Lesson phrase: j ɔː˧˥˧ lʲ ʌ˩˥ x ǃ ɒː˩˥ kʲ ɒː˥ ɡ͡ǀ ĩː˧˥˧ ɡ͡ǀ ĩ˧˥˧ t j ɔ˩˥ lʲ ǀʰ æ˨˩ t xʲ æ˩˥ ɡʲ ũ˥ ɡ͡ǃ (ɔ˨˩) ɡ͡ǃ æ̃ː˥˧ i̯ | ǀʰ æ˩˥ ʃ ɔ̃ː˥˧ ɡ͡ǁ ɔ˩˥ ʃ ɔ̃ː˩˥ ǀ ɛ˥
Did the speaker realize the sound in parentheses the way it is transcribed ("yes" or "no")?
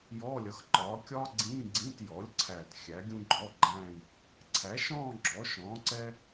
no